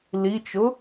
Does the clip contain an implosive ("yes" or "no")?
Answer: no